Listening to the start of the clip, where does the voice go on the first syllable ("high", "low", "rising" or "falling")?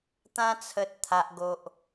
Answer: high